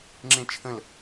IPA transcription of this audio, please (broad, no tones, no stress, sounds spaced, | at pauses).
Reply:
ŋ͡ǁ ẽ t͡ʃʰ ə̃ l